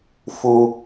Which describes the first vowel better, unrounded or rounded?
rounded